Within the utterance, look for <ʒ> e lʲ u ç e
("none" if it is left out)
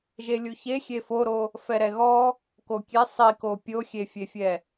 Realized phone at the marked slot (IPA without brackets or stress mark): ʒ